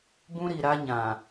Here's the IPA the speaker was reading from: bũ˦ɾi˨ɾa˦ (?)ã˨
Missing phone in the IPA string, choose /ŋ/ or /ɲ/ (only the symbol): ɲ